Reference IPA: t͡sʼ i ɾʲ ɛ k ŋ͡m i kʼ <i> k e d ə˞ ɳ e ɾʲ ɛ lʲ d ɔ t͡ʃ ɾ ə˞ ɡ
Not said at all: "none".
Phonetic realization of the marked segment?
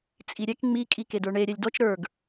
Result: i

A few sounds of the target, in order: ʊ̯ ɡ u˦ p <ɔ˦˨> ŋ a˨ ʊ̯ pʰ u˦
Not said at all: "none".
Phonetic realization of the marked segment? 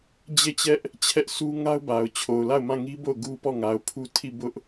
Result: ɔ˦˨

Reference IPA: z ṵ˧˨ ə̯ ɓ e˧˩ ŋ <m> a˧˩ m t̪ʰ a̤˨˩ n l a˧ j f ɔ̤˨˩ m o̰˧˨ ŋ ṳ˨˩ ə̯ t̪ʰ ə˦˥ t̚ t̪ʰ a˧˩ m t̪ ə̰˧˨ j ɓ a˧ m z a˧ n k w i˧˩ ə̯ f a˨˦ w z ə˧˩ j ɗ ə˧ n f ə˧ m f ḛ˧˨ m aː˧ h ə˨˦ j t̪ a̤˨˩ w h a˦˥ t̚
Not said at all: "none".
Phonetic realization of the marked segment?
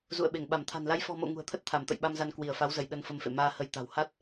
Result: ɓ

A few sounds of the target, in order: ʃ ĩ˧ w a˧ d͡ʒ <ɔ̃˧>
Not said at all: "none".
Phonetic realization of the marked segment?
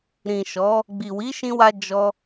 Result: ɔ˧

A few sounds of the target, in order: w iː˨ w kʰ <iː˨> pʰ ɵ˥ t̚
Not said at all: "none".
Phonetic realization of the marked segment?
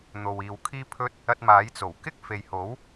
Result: iː˥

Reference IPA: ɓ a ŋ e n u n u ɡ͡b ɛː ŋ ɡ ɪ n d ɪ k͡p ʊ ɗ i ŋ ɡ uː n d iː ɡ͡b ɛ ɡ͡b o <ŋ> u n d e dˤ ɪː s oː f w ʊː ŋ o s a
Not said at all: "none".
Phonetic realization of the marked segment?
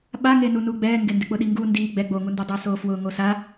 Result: ŋ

